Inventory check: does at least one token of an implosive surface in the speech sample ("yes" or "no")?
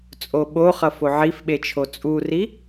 yes